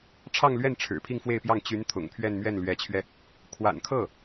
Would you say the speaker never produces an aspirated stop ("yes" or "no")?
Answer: no